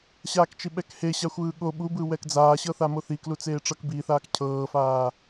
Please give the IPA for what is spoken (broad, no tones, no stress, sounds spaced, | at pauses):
ɕ aː k t͡ʃ i ɓ ɛ k h e ɕ a xʷ ɯː ɠ o ɓ u b ɯ w ɛ k d͡z aː ɕ ɤ θ a m o θ i k l u t͡s eː ʈ͡ʂ ɤ k b i θ aː k cʰ ɤː f aː